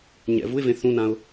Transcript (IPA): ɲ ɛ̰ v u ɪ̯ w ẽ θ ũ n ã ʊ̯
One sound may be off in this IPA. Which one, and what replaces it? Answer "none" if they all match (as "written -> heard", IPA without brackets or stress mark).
w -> v